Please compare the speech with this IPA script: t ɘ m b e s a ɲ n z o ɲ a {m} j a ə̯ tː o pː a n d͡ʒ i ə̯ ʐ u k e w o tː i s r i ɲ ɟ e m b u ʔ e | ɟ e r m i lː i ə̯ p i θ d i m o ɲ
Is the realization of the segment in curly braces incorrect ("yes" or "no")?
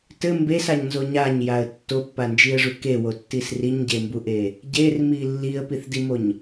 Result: yes